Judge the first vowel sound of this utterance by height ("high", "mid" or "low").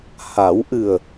low